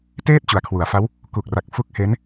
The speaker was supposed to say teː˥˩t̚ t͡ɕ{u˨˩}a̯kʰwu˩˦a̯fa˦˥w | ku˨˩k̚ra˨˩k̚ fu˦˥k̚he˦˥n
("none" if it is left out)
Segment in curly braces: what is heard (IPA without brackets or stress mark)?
u˩˦